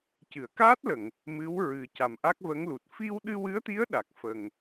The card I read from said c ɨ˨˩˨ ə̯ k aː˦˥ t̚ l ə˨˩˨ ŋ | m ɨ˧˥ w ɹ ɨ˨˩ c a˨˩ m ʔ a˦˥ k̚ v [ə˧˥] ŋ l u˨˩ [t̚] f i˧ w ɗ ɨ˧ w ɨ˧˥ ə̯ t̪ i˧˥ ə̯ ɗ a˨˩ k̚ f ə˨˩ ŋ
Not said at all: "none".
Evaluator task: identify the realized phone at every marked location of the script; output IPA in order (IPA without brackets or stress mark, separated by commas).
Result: ə˧˥, t̚